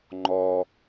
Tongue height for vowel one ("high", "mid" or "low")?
mid